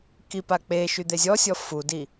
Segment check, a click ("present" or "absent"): absent